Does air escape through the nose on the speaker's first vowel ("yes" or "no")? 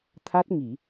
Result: no